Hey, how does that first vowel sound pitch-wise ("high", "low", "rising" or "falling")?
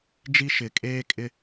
high